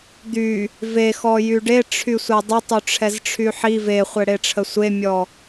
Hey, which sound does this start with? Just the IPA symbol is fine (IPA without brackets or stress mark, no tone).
d̪